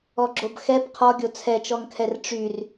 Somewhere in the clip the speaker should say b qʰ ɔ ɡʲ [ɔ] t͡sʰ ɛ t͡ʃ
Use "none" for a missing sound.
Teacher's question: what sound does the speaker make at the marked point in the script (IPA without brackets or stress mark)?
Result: o